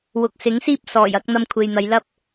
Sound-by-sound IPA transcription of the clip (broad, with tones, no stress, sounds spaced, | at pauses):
w ʊ˨ k̚ s ɪ˨˥ ŋ s iː˥ p̚ s ɔː˨˩ j ɐ˨˥ k̚ n̪ ɐ˧ m kʷʰ e˨ j n̪ ɐ˨˧ j l ɐ˥ p̚